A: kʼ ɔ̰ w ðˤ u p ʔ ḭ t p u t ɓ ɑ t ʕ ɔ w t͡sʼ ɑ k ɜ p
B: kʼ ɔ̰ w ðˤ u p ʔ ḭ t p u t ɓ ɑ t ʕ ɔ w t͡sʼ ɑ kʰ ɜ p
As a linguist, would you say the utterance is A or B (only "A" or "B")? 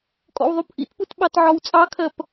B